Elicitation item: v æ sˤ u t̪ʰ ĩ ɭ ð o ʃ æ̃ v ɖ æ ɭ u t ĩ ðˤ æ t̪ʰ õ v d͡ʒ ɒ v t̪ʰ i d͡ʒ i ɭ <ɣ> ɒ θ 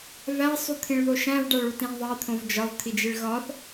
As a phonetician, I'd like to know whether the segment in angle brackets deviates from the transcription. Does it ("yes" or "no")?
no